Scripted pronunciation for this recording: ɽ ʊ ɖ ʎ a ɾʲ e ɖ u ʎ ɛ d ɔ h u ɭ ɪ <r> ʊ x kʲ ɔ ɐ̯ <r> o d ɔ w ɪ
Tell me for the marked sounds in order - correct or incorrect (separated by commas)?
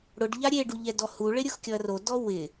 incorrect, correct